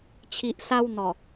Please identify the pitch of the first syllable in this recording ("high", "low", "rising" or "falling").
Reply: low